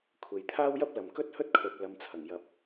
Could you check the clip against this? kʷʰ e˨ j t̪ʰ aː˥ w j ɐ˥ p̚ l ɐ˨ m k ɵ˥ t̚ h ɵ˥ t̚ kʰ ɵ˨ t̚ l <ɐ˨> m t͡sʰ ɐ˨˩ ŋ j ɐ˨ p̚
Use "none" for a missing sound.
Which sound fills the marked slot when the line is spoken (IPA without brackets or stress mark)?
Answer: ɐ˨˧